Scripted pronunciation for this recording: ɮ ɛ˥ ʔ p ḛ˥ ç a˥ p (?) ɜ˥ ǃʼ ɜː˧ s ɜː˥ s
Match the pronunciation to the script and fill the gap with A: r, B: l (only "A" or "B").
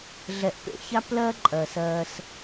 B